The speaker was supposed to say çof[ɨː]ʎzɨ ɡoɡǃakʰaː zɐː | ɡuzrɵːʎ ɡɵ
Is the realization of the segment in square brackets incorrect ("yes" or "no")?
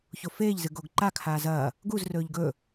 yes